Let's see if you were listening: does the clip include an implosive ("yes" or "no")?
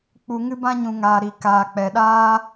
yes